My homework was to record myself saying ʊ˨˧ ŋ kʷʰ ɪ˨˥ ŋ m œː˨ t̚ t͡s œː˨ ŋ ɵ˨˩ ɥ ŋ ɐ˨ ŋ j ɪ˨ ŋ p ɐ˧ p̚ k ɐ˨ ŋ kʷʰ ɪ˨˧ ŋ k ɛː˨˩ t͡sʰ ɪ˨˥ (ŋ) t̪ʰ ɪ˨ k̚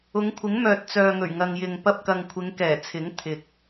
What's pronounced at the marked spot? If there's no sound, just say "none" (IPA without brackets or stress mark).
ŋ